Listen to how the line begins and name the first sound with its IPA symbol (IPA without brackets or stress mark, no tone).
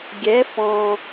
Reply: ɡʲ